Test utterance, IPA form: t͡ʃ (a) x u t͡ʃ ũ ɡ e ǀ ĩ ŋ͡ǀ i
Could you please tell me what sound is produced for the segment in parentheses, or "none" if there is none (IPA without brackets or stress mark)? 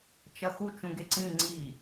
ɐ